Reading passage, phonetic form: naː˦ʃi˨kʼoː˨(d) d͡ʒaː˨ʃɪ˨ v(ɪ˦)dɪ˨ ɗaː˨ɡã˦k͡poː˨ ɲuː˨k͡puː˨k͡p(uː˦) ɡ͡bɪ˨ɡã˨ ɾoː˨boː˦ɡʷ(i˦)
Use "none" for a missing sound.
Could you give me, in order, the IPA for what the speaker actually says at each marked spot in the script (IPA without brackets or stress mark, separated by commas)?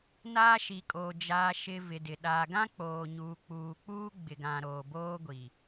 none, ɪ˨, uː˦, i˨